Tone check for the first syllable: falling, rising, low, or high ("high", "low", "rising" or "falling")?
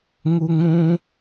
high